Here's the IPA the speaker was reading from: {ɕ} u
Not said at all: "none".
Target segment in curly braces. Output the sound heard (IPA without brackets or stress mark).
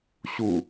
ɕ